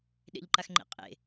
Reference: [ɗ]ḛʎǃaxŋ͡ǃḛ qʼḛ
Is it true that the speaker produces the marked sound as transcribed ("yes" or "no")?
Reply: yes